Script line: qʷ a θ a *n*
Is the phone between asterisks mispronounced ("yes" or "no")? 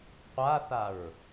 yes